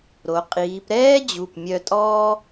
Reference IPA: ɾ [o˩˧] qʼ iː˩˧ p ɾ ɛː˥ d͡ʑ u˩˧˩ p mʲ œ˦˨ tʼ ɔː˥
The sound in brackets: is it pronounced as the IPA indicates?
yes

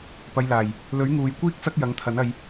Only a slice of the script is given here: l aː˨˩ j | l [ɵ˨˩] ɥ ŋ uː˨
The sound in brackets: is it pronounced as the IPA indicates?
no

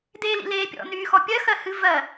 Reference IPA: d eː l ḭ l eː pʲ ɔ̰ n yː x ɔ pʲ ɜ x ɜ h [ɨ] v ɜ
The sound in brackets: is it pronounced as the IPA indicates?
yes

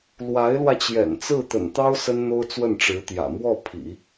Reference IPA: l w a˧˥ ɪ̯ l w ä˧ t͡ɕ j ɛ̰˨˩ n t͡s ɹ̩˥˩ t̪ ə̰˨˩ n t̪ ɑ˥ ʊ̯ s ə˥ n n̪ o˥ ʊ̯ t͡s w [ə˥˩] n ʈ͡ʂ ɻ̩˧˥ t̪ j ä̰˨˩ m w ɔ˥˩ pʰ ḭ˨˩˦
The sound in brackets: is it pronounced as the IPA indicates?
yes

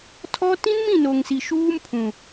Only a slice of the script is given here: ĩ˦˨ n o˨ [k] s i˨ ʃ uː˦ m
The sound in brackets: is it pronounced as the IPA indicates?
no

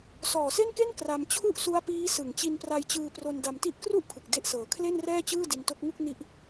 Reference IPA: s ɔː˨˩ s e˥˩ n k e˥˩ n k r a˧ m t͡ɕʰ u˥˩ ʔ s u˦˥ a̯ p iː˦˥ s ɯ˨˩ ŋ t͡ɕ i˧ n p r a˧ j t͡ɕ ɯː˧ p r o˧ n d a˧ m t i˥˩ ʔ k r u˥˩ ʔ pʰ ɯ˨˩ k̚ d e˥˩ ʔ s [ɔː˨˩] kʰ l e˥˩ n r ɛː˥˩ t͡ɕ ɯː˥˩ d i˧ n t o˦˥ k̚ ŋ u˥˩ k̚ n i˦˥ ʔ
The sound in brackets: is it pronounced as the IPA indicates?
no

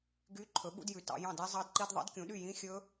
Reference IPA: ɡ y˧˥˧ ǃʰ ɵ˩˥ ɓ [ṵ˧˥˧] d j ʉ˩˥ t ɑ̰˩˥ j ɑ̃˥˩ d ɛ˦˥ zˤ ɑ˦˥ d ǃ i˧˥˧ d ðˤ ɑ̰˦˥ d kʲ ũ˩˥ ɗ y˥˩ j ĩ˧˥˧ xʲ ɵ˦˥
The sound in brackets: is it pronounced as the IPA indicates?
yes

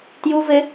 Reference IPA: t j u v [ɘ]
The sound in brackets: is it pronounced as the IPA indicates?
yes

